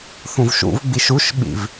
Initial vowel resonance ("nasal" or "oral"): nasal